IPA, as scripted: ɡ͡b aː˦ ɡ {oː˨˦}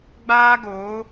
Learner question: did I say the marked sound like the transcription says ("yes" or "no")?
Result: yes